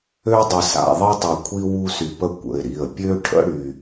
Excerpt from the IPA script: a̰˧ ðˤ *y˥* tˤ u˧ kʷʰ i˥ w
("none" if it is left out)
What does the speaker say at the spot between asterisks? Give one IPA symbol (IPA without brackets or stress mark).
i˥